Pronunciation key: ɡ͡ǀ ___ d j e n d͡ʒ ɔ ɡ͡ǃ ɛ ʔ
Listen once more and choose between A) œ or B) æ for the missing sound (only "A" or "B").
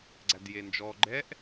B